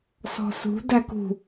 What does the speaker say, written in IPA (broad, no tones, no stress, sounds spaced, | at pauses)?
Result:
s ɔ̤ s ṳ d æ k ṳ